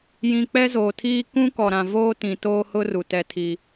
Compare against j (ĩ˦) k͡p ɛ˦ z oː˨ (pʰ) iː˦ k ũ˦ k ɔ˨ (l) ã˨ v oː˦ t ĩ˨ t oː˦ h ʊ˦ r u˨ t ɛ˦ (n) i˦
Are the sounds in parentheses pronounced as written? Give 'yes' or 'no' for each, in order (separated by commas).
no, no, no, no